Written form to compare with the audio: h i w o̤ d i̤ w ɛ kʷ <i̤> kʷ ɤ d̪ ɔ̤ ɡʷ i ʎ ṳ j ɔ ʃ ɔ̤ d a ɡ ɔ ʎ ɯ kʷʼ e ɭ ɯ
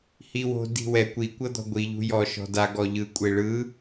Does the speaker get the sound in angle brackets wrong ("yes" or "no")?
yes